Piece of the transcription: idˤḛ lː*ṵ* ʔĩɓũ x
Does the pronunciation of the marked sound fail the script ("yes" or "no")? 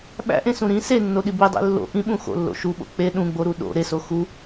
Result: yes